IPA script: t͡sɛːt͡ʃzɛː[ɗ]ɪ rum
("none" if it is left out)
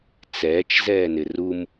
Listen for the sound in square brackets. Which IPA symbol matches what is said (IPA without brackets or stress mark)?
n